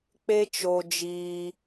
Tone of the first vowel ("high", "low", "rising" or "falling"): high